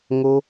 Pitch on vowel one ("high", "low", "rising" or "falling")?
high